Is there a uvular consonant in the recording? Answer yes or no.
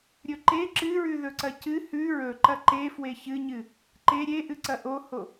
no